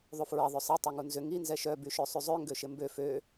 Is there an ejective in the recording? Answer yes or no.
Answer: no